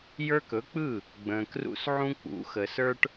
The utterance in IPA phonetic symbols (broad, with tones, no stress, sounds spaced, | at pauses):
j ə˞˦ k ɵ˨˥ k͡p ɯ˥˩ | ɡ͡b ə̃ː˨ k r ṵ˦ s ʕ ũ˦ k͡p ṵ˨˥ x ə˨ s ə˞˦ ʈ